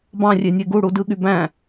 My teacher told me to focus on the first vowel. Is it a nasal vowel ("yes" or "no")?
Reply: yes